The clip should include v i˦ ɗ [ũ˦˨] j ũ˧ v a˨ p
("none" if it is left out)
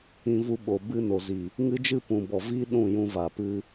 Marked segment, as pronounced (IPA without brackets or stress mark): ũ˦˨